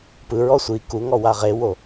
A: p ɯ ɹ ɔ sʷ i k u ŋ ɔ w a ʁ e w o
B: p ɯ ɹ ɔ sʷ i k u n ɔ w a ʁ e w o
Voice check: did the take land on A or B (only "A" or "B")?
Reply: A